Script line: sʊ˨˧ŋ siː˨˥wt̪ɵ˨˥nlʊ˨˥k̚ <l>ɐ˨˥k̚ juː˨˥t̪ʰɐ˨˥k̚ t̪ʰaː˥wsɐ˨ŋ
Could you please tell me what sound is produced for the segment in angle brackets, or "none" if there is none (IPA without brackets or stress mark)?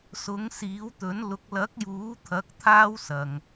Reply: l